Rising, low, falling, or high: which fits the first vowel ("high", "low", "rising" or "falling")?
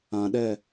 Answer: low